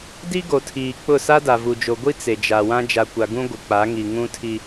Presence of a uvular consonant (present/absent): absent